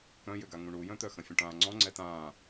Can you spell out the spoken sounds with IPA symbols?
kœ̃jʏɡa ŋũɳujœ̃t̪œ xɐ̃fʲə̃ʈãːŋ͡ǀɔ̃ ŋ͡ǀɛtãː

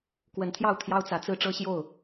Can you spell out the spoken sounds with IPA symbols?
kwə˨˦nt̪ʰjɑ˥˨ʊ̯t̪ʰjɑ˦ʊ̯t͡sä˨˦ t͡sɹ̩˦ʈ͡ʂɤ˦ɕjo˥˨ʊ̯

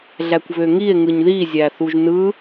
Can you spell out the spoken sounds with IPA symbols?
ɮækʷβøŋie̯ ŋɯɲði zʲæθuʒnɯ

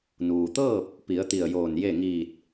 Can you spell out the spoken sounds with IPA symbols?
nuː˩t̪ɤː˥˨p̚ | pi˩˧ə̯t̪i˧˩ə̯joː˧˩nje˥˨ ŋiː˧˩t̚

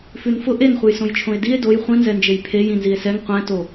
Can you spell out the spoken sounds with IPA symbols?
fʉnfʊ ʔenχʷəjsõjt͡ʃʰõe̯ die̯ doj χʷĩnzɛnd͡ʒej pʰej ĩnzie̯sɛŋ qʷɛ̃to

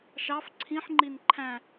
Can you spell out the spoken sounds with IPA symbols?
ʃɑf ǀʰĩħŋ͡ǃin ǃʰæ̃

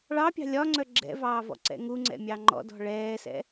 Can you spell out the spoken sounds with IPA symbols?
ɭɑpʲɑ̤ lʲɒŋ͡ǀœ ɡ͡ǁɛ̰vɑːvɔ̰ǀɛ̰ ŋuŋ͡ǀɛ̰mʲɑ ŋ͡ǃɔ̰dɔ̤ ɭɛːsɛ̰

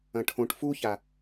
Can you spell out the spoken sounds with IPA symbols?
ɐ̃ʈʰõʈ fuça

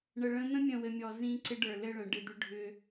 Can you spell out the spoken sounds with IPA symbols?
ɳə˨ɭə̃˦ n̪ə̃˦mʲə̃˨wɘ˨mʲɔ˨ zĩ˦ ǀɪ˦ɖə˞˨ lɘ˦ɭə̃˨ ɖɪ˦˨d̪ʏ˦ ɖʱʏ˦

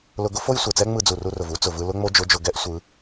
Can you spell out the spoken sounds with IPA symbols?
lʊ˧ɡʊ˥fo˥j sʷɛ˩t͡sɛ˥ ŋ͡mɯ˧d͡zu˩ru˧rʊ˩v u˥t͡sʊ˩vɯ˧ lʊ˥ŋ͡mo˥d͡ʒʊ˧˥d͡ʒʊ˧ ɡɛ˥ʔ sʷɯ˩˧

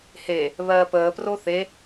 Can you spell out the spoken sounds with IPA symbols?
he | βɜːpəːpro θe

